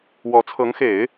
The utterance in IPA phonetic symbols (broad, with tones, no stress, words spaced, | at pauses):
wɔ˧˥t͡sʰɤ˧˥ŋxe˨˩˦ɪ̯